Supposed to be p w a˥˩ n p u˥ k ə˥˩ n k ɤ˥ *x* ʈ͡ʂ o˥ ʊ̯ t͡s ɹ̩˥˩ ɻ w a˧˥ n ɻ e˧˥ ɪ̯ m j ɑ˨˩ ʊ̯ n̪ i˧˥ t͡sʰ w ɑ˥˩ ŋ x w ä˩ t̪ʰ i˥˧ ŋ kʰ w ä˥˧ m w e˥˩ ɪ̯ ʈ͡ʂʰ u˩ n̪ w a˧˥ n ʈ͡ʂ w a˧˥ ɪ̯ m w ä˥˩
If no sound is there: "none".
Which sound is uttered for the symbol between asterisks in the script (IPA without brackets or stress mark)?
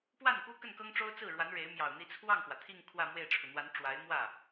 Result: ŋ